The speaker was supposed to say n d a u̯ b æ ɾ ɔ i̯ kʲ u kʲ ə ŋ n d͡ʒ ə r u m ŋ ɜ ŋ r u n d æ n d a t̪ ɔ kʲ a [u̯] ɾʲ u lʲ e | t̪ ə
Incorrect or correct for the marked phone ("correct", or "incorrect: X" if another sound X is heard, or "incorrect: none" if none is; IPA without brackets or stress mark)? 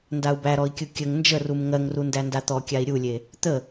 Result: incorrect: i̯